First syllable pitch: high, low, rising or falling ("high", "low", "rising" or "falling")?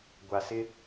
low